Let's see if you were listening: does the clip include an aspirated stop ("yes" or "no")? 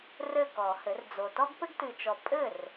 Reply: no